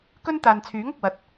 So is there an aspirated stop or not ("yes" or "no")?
yes